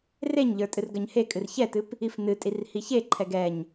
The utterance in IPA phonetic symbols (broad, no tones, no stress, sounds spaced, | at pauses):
r e ɲ ʎ ə˞ tʼ ɨ r ɡ ɜ ɲ h e kʼ ɨ r ç ɛ t ɨ p | i f n ɨ tʼ i r h i ç e ǃʰ ɛ ɡ ɛ ɲ